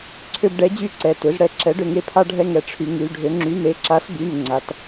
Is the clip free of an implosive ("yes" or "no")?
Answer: yes